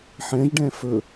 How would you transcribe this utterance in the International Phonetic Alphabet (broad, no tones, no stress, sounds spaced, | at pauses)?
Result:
ħ ɛ̃ ʒ ɖ ɛ̃ f ɵ